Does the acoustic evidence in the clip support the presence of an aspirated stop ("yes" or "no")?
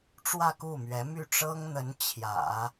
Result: yes